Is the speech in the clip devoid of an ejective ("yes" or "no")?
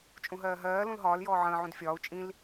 no